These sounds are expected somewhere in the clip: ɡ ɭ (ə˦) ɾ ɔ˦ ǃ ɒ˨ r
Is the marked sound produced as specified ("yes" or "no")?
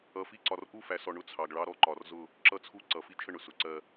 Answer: no